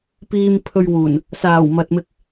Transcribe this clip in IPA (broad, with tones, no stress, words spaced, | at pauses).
piː˧mpʰɵ˧ɥwuː˨˩n | saː˨˩w mɐ˨t̚mɪ˧k̚